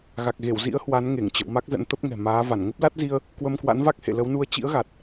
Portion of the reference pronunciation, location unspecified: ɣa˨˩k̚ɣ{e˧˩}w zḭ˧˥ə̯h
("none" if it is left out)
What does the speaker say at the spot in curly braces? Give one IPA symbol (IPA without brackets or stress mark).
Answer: e˧˩